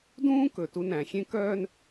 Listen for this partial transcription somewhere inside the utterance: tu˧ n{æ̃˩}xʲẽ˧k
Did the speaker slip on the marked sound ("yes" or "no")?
no